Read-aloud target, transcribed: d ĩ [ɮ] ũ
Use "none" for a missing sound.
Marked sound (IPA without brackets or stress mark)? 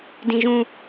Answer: ʒ